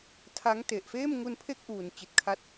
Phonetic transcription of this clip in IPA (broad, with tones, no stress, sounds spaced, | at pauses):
tʰ a˦˥ ŋ t e˨˩ ʔ f eː˥˩ m ŋ u˧ n pʰ e˥˩ k̚ ʔ uː˨˩ n t͡ɕ i˨˩ t̚ kʰ a˦˥ t̚